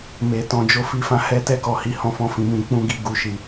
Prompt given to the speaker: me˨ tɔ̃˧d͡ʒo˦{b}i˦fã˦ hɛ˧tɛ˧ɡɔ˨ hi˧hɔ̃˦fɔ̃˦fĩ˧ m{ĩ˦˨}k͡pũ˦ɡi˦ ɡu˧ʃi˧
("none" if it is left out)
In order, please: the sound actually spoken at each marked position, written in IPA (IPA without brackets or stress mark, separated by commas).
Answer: f, ĩ˧